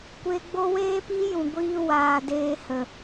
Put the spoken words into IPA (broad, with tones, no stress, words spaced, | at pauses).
kʷe˧ ɡ͡bo˦ weː˦piː˦jũ˨ ɡʷiː˧waː˨ deː˧ hə˨